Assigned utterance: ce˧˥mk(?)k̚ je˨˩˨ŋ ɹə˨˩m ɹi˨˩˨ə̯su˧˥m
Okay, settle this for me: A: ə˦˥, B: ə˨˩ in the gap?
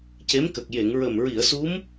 B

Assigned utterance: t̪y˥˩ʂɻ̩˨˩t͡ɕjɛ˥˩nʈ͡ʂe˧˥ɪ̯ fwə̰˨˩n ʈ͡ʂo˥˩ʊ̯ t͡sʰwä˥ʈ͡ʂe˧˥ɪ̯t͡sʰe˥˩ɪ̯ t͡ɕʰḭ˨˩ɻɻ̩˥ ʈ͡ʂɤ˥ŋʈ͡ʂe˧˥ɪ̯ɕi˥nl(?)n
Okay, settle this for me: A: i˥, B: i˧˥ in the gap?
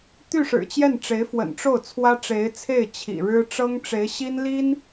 A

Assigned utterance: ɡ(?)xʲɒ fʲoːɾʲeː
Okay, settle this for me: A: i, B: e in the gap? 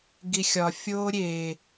A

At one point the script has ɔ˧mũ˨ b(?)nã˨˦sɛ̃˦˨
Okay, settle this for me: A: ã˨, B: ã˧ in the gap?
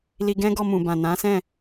A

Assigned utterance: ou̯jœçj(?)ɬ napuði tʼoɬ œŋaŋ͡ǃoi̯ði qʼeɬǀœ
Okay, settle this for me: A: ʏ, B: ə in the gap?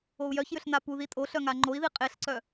A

